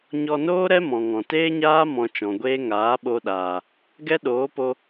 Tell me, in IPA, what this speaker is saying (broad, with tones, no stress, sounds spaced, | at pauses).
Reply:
ɲ ɔ˧ n oː˦ ɾ ɛ˦ m ɔ̃˨ ŋ ɔ̃˨ t eː˦ ɲ aː˦ m ɔ̃˧ t͡ʃ ɔ̃˨ ɡʷ eː˦ ŋ aː˨˦ ɓ o˧ ɗ aː˨ | ɡ ɛ˦ ɗ oː˨˦ p o˧